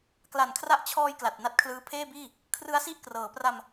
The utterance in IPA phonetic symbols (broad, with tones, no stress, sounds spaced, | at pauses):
k l a˨˩ n kʰ r a˦˥ ʔ t͡ɕʰ ɔː˧ j k l a˨˩ t̚ n a˦˥ t̚ kʰ l ɯː˦˥ pʰ eː˥˩ b iː˥˩ | kʰ r ɯ˦˥ a̯ s i˥˩ ʔ k r ɤː˩˦ p r a˧ m